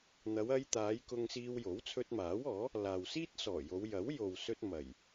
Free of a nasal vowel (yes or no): yes